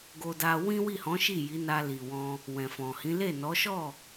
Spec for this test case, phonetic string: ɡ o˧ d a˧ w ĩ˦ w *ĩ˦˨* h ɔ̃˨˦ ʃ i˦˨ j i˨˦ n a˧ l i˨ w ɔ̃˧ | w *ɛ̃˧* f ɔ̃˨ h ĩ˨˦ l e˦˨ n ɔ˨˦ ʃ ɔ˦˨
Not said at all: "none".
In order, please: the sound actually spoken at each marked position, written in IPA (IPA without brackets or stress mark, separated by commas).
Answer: i˦˨, ɛ̃˨